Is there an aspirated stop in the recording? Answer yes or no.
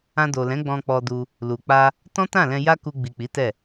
no